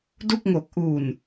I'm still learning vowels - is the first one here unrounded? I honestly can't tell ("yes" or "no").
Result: no